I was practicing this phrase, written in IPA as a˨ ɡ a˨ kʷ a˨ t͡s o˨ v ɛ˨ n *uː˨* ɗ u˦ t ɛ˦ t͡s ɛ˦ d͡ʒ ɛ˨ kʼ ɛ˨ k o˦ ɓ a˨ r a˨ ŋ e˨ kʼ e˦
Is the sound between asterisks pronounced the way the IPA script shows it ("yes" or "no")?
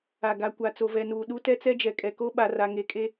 yes